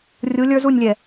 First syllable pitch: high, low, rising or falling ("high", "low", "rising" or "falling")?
rising